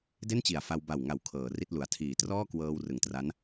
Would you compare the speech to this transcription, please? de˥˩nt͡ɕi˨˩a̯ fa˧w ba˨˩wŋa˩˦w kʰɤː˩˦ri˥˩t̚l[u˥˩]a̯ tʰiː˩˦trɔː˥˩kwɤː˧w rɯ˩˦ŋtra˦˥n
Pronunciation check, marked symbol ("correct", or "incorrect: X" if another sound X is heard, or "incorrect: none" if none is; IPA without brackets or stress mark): incorrect: u˨˩